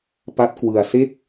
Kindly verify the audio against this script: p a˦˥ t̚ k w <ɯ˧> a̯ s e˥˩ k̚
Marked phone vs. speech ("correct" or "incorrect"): correct